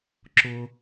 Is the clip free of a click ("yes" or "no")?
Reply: no